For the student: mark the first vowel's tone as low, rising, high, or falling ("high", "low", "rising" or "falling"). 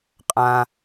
low